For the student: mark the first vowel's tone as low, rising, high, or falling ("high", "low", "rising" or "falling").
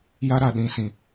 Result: high